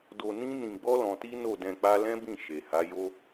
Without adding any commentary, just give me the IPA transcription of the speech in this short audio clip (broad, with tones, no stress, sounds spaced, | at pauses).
d o˧ n ĩ˦ n ĩ˧ ɡ͡b ɔ˦ l ɔ̃˧ t i˦ n o˦˨ d ɛ̃˧ k͡p a˦ l ɛ̃˦ b ĩ˦˨ ʃ e˨ h a˨˦ j o˦